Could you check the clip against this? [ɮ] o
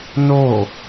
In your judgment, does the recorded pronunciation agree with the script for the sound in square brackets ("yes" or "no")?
no